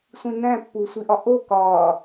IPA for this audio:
sʷĩnæ̃pːu sʷiʔɒʔo kɒ

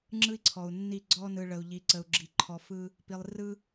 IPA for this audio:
ŋ͡ǁɯ˦i̯ǀʰɔ˨u̯nːi˦˨ ɡ͡ǀɔ˦ nɯ˨ɭə˨u̯ʎi˨ ǀə˨u̯ɡ͡ǁi˨ǃʰɔ˨fɯ˦ | pi˨lˠrɯ˦

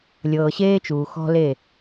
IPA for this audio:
lʲɤː˨ɕeː˦t͡ʃuː˨ xɔ̤˦le˦˨

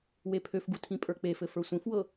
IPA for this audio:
wepʰøfɡu tʰĩpʼə˞k͡pefɘ fə˞sʷĩfwɤ

